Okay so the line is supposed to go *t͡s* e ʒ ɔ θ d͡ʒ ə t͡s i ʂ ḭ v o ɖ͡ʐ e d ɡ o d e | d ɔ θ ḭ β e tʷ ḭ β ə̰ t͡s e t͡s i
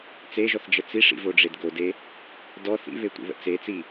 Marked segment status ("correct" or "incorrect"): correct